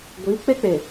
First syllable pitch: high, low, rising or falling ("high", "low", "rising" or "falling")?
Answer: rising